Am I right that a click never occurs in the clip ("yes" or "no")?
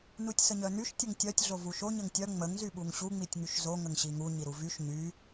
yes